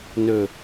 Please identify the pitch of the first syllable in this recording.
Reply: low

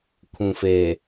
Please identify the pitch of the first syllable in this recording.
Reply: low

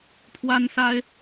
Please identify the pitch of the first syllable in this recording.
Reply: high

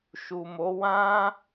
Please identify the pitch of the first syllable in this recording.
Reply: low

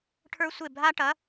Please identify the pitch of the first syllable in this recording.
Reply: high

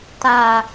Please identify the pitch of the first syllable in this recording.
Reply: low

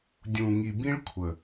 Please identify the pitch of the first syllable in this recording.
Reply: low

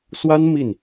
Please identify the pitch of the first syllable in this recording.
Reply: high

